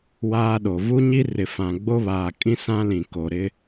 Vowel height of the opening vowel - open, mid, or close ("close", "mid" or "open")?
open